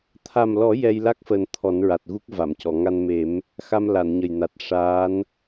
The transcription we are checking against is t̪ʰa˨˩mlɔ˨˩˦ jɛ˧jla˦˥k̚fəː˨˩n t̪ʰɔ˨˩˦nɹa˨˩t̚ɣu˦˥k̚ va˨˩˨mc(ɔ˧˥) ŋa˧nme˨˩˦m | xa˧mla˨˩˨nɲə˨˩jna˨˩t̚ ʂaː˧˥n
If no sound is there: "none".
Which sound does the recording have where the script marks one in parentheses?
ɔ˨˩˨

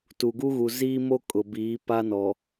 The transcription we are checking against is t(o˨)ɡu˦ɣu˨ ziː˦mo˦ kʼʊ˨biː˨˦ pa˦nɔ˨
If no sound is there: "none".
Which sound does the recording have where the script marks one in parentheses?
u˨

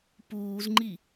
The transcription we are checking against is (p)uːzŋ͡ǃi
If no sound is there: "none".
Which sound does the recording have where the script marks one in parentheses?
p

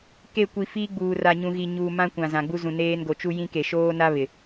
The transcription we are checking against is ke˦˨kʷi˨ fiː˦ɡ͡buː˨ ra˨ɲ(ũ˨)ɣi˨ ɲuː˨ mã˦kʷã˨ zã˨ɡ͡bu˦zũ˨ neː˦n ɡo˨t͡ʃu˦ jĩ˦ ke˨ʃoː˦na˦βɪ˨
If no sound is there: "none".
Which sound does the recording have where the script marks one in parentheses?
ũ˨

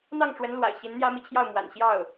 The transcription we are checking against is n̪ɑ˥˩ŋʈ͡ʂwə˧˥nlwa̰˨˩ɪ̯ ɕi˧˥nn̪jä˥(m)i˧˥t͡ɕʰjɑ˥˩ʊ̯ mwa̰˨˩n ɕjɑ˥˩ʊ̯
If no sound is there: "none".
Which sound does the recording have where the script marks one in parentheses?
m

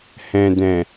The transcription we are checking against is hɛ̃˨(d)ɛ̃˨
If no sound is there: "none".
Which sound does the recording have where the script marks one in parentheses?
d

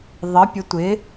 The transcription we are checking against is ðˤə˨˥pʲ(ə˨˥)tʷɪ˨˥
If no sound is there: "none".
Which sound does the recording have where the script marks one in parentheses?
ə˨˥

